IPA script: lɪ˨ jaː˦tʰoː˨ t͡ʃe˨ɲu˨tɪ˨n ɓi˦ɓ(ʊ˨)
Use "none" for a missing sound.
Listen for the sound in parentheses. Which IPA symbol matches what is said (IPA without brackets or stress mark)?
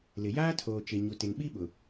ʊ˨